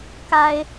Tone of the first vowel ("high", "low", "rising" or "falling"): low